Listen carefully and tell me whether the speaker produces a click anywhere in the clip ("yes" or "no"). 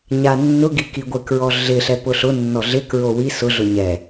no